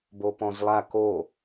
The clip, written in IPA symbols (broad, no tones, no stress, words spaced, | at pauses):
bopɔ̃zlˠa ko